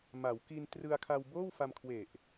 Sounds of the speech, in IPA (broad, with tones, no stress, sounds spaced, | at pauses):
m a˩˦ w k i˧ n t r ɯ˧ a̯ kʰ a˧ w b oː˥˩ w f a˧ m kʰ w e˨˩ ʔ